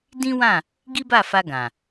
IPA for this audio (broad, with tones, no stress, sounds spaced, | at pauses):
d ĩ˦ w ã˦˨ | ɡ i˦ b a˦˨ f a˧ ɡ ã˨